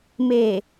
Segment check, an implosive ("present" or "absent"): absent